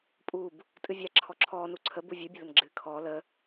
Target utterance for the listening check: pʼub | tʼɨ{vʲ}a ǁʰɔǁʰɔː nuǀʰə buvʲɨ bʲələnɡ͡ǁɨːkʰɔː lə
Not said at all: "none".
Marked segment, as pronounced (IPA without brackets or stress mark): vʲ